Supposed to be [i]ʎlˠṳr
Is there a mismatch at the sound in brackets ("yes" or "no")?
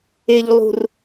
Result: yes